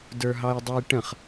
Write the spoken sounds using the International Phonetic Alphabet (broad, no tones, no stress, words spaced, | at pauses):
də˞ɦɑjdˤə˞jʈə̃χ